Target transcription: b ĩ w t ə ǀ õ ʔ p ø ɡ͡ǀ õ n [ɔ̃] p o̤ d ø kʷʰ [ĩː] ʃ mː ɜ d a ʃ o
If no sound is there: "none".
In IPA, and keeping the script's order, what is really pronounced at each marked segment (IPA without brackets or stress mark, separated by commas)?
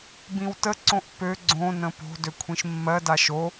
ə̃, ĩ